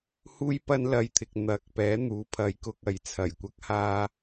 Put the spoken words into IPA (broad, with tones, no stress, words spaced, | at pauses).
huː˥jpɐ˥nlɐ˧jt̪ʰɪ˨k̚ n̪ɐ˨˥k̚pɛː˨˥n̪uː˨˥ pʰɐ˨˧jkʊ˧k̚ ɐ˨jt͡sʰɐ˨˩jkʷɐ˥k̚haː˥